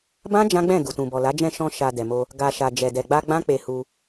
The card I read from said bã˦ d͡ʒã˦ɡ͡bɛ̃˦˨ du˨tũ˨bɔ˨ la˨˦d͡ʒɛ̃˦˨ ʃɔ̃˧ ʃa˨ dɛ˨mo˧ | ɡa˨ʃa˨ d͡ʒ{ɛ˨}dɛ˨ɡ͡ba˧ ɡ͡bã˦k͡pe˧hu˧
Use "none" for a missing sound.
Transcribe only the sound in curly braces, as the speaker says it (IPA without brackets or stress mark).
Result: ɛ˨